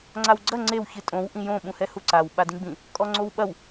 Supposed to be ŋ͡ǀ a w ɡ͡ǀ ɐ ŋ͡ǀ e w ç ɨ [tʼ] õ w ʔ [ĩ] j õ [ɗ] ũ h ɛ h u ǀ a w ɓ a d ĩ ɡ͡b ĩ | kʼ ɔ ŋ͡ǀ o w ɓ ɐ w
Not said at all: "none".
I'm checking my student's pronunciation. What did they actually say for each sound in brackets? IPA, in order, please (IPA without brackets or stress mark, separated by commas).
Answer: tʼ, ĩ, ɓ